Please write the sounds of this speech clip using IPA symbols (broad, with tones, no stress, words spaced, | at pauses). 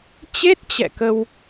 t͡ɕe˦˥t̚t͡ɕɛ̰˧˨ kə˧w